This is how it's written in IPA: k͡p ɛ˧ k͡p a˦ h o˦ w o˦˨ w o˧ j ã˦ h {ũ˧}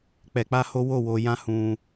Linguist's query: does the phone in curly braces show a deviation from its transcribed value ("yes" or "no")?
no